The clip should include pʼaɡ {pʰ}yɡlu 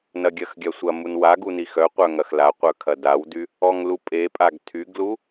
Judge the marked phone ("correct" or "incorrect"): incorrect